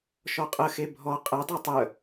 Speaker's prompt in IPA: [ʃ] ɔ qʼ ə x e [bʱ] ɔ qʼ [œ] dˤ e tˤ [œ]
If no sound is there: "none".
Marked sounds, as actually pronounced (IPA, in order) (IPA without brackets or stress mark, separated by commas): ʃ, bʱ, ɛ, œ